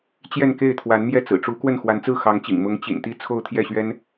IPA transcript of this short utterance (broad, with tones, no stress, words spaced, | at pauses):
t͡ɕjɛ˥˧nke˥˩ɪ̯t̪ʰwa˧˥nmjɛ˥˩ t͡sɹ̩˨˩ʈ͡ʂu˧˥kwə˥˩n xwa˧˥nt͡sɹ̩˥˩xɑ˧˥ŋt͡ɕḭ˨˩ŋ mʊ˧˥ŋ t͡ɕḭ˨˩nt̪i˥˧ t͡sʰo˥˧ʊ̯t̪ʰjɛ˥˩ɕɥɛ˥n